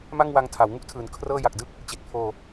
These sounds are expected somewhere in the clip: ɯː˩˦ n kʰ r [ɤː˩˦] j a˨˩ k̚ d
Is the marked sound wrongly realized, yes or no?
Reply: yes